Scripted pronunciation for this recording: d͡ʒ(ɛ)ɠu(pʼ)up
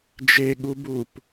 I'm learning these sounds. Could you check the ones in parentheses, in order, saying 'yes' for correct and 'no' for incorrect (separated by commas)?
no, no